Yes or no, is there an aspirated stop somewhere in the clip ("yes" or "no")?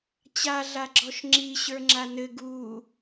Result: no